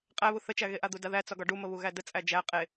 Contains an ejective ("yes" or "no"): yes